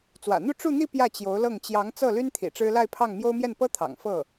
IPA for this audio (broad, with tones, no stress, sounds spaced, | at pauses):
t͡s w ä̰˨˩ n̪ u˥˧ ʈ͡ʂ u˥˧ n̪ i˥˧ p j ä˥˩ t͡ɕ j o˧˥ ʊ̯ l ɤ˥˩ ŋ t͡ɕ j ɑ˧˥ ŋ t͡s ɤ˥˩ l y˥ n t̪ʰ ḭ˨˩ ʈ͡ʂ ɻ̩˥ l a˥˧ ɪ̯ pʰ ɑ˥˩ ŋ m j o˥ ʊ̯ m j ɛ˥˩ n p ɤ˥ t̪ʰ ɑ̰˨˩ ŋ f ɤ˥˩